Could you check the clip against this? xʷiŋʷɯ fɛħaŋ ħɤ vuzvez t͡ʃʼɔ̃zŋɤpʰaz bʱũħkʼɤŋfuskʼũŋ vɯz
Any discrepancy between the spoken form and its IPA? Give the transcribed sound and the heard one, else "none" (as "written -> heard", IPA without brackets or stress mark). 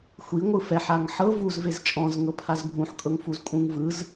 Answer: s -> z